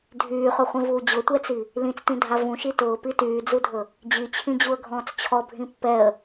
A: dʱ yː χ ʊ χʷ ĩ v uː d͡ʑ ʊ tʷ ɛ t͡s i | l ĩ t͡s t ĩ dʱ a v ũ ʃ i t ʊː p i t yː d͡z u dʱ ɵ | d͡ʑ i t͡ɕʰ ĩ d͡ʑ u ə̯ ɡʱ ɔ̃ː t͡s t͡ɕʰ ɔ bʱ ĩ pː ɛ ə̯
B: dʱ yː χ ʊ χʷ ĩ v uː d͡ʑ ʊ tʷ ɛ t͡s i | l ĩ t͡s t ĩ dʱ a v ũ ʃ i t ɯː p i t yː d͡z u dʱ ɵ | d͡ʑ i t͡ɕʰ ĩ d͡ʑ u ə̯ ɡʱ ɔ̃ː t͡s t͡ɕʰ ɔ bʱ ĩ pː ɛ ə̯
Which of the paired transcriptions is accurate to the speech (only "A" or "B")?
A